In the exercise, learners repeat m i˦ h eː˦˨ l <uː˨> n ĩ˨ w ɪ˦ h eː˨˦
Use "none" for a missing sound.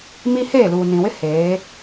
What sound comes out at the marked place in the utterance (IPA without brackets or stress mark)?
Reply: uː˨